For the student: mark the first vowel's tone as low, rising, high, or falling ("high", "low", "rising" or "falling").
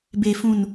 low